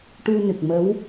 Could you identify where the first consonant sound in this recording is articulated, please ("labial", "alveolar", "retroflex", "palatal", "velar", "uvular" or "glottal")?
retroflex